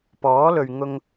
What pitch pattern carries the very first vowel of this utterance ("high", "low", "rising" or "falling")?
rising